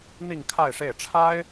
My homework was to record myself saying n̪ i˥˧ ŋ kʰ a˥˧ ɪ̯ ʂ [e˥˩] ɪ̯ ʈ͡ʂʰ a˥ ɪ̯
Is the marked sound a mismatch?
no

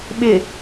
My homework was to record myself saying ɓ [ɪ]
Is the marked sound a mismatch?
no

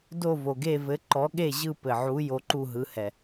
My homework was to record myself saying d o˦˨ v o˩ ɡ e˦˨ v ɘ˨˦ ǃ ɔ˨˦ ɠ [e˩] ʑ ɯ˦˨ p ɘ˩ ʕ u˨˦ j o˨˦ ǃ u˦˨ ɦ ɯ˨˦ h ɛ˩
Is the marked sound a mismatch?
yes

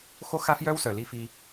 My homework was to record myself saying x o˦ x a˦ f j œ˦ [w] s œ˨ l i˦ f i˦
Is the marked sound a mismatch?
no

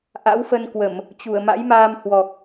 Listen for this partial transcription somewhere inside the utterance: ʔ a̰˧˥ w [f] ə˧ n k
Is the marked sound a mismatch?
no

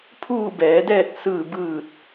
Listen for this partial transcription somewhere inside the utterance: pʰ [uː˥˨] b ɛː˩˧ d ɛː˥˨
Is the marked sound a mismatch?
no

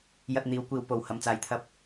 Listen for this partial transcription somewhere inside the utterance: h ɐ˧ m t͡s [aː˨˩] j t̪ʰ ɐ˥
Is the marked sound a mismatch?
yes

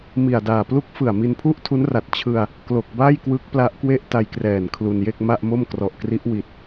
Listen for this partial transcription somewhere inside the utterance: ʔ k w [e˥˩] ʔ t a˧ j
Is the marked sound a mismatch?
no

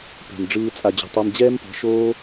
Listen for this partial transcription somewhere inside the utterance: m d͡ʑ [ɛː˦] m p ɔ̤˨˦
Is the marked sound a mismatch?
no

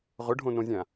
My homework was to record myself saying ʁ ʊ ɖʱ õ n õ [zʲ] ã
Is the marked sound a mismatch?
no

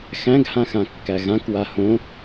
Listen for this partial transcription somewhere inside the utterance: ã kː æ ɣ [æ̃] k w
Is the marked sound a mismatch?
yes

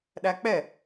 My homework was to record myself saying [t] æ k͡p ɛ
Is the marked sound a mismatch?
yes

